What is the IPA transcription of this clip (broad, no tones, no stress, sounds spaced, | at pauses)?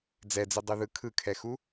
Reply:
d͡z ɛ d͡z i dˤ ɯ ð ɯ kʰ ɯ kʰ ɛ x u